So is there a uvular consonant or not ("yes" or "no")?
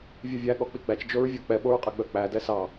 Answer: yes